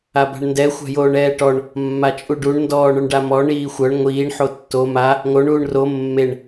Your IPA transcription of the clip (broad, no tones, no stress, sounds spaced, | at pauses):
a b a̤ ɳ n d ɛ xʷ a̤ j oː ɳ ɛː ʈ ɔ ɳ | mː a t͡ʃʼ u ɖ u ɳ n d ɔː ɳ œ ɳ ɖ a m ɔ ɳ iː xʷ œ ɳ ŋʷ iː ɳ ħ o tː o m a | ŋ o ɳ uː ɳ r o mː e ɳ